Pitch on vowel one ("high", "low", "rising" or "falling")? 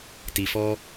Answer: low